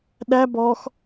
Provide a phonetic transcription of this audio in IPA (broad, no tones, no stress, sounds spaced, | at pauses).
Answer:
ɗ æ b ɔ x